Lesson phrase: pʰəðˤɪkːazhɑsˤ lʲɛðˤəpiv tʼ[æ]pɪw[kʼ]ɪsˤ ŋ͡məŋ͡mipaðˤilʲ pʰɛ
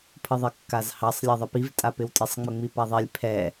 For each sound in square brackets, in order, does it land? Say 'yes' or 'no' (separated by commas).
no, no